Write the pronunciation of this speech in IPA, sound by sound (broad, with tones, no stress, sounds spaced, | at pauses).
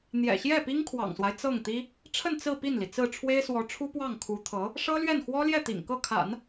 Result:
n̪ j ɛ̰˨˩ ɕ j ɛ˥˩ p i˥ ŋ kʰ w ɑ̰˨˩ ŋ s w a˦ ɪ̯ t͡s ɤ˥˩ ŋ t̪ i˥ | ʈ͡ʂʰ ə˥˧ n t͡s ɹ̩˥˧ p i˥˩ n l i˩ t͡s ɹ̩˥˩ ʈ͡ʂʰ w e˥ ɪ̯ s w ɔ˧˥ ʈ͡ʂʰ u˥ p w ɑ˥˩ ŋ kʰ u˧˥ t̪ʰ ɤ˧˥ | ʂ ɤ˥ l ɥ ɛ˥˩ n x w ɔ˥ l j ɛ˥˩ t̪ ḭ˨˩ ŋ k ɤ˥˩ kʰ a̰˨˩˦ n